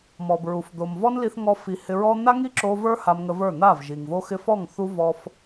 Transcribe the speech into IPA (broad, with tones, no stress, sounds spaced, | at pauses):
m ɔ˨ b ɹ u˨ f d̪ o˨ m v ɔ˦ n l i˧ θ ŋ ɔ˧ f i˨˦ h ɪ˧ ɹ ɔ˦ n̪ a˦ ŋ i˦ ǁ o˧ v ə˞˦ h a˧ m ŋ ə˧ v ə˞˦˨ n̪ a˦˨ v ʒ i˨ ŋ v o˧ x ɪ˧ f ɔ˦˨ ŋ θ u˦ v ɔ˧ f